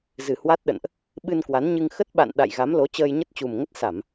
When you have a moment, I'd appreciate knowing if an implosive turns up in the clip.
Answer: yes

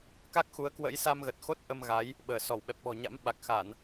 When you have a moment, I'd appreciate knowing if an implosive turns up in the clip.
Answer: yes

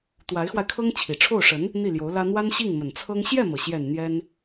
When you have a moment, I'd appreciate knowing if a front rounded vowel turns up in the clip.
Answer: no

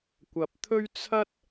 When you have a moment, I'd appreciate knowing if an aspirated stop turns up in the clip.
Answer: yes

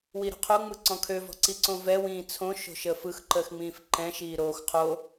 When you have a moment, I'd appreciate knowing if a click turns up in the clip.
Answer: yes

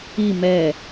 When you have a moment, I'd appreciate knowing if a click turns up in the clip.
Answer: no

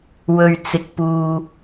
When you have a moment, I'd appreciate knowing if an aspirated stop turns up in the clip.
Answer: no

